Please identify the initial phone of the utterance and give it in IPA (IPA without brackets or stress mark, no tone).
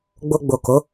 ɡ͡b